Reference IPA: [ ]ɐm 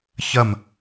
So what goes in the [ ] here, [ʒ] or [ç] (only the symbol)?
ç